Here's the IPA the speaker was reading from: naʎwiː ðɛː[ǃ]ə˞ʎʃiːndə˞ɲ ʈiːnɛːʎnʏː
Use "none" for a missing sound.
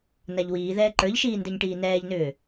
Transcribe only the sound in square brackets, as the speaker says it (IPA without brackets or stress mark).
ǃ